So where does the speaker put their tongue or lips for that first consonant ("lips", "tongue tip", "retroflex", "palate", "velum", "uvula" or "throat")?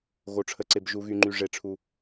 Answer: velum